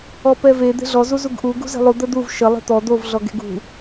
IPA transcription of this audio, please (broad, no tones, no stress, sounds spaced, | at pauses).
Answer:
ɔ p ɛ v e d̪ e̤ ɮ ɔ z u z u ɡ ʔ u ɡ ṳ z e̤ lˠ u d̪ ə d̪ u v ʃ ə lˠ e̤ t̪ ɔ d̪ o v ɮ ɔ ɡ e̤ ɡ ṳ